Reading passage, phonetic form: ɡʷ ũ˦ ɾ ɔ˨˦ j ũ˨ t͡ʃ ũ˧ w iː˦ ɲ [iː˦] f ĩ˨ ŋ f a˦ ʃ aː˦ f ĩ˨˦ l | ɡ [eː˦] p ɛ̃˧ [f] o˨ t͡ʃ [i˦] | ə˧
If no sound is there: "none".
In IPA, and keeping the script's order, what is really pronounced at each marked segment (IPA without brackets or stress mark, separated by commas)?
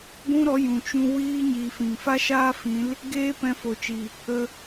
iː˧, eː˦, f, i˨